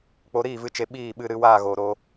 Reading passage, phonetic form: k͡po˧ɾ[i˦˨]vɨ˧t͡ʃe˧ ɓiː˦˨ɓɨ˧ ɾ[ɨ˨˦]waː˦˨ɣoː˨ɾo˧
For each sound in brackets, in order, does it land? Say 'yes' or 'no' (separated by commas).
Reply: no, yes